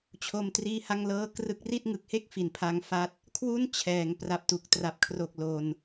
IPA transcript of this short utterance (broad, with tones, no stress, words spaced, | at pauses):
t͡ɕʰo˧mtriː˦˥ ha˥˩ŋlɤː˥˩ krɯ˦˥k̚ri˥˩t̚ ŋɯ˨˩k̚he˥˩k̚ fi˩˦npʰa˧ŋfa˦˥t̚ | kʰwu˥˩n t͡ɕʰɛː˩˦ŋ pra˨˩p̚tu˨˩k̚tra˨˩p̚ kʰro˨˩k̚ lo˧n